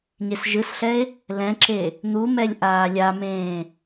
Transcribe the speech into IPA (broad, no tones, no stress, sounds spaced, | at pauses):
ɲ e s ʒ ɯ s ɬ ɛ e̯ | l ɛ̃ ǁ e | n̪ u m ɛ lʲ ʔ aː lʲ a m ẽː